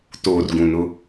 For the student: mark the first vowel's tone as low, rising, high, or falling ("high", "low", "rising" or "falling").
low